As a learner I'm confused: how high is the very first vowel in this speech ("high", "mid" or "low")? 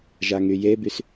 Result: low